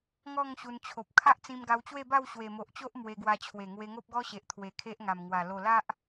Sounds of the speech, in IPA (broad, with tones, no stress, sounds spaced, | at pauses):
ŋ ɔ˥˧ ŋ ɕ u˧ n t͡ɕʰ o˨ p̚ kʰ a˦ ʔ t͡s ĩ˧ m ɡ a˧ w t͡ɕ w e˥˧ b a˥˧ w ɕ w e˨˩ m o˨ ʔ t͡ɕ o˦ ʔ m w e˧ ɡ w a˧ t͡ɕʰ w e˨˩ ŋ w e˧ ŋ o˦ p̚ ɡ ɔ˦ ɕ e˨ ʔ t̪ʰ w e˨˩ kʰ e˦ ʔ ŋ a˨˩ m ŋ w a˨˩ l o˨˩ l a˦ ʔ